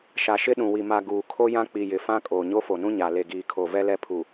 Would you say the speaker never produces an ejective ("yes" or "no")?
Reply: no